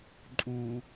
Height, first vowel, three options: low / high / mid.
high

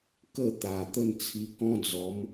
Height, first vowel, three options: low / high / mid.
mid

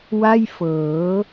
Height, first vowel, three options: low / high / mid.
low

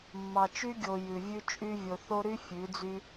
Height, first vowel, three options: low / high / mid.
low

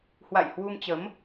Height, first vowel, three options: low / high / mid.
low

